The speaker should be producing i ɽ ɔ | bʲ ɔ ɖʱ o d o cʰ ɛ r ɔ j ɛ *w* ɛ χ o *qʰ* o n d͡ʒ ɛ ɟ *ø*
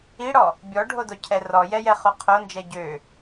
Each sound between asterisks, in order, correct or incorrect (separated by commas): incorrect, correct, correct